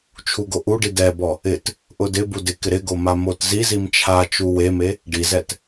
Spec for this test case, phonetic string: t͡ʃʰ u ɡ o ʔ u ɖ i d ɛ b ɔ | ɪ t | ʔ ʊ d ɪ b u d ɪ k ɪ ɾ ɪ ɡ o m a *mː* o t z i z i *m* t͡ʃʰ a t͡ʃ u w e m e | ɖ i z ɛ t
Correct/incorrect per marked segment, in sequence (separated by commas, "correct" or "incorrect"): incorrect, correct